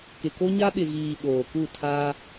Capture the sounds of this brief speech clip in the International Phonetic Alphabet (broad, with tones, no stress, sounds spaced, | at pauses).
k ɪ˨ k o˦ ɲ a˦ ɓ ɪ˨ ɣ iː˨ ɓ oː˨ k u˦˨ tʰ a˦